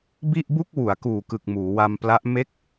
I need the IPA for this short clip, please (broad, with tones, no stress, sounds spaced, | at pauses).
b i˥˩ ʔ b u˥˩ k̚ w u˩˦ a̯ k uː˨˩ k ɯ˨˩ k̚ m uː˩˦ w a˧ m p l a˦˥ ʔ m e˦˥ k̚